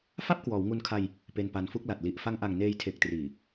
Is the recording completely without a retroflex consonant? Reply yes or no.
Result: yes